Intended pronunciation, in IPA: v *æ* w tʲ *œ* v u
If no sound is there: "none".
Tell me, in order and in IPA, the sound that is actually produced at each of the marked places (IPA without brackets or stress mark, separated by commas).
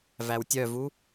æ, œ